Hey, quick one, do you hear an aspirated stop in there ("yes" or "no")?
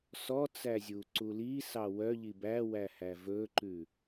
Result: no